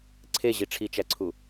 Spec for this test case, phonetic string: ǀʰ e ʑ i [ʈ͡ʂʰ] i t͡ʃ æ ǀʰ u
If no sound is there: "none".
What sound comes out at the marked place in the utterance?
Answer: ʈ͡ʂʰ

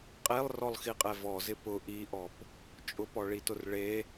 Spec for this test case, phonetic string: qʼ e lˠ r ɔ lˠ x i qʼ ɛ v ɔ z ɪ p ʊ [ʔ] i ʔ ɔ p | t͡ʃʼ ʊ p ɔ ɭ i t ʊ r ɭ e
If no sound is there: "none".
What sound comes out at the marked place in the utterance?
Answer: ʔ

